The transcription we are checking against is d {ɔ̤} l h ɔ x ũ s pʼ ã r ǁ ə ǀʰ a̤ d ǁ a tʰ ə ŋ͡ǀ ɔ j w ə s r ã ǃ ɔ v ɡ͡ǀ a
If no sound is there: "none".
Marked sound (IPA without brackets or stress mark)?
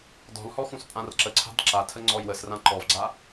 ɔ̤